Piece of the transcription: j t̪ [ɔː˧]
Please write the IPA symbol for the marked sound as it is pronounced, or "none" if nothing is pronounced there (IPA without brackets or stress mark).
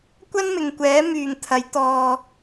ɔː˧